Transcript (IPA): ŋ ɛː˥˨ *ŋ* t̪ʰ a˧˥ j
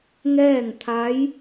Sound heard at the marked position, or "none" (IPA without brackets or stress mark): ŋ